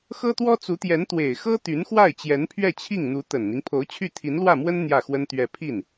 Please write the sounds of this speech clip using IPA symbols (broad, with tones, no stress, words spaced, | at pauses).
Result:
xɤ˥t̪wɔ˥t͡su˧˥t̪jɛ˧˥n t̪we˨˩ɪ̯xɤ˥ t̪y˧˥nxwa˥˩ɪ̯ t͡ɕjɛ˧˥npʰɥɛ˥˧t͡ɕʰi˥˩ŋn̪u˧˥ t̪ə˨˩nn̪i˦ŋ pʰo˧˥ʊ̯t͡ɕʰy˥˩ t̪ʰi˧˥nlwä˥˩mwə˥n n̪jä˥˩xwə˥nt̪ɥɛ˥˧ pʰi˥˩n